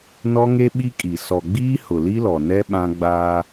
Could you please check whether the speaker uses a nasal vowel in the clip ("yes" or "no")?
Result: yes